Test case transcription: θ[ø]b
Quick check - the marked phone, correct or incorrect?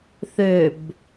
correct